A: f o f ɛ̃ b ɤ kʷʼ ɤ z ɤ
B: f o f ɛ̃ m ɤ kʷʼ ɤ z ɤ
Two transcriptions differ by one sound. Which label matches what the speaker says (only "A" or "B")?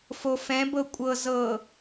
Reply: A